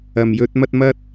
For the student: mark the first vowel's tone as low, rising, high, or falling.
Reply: low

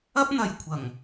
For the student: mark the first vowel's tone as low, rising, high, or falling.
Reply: high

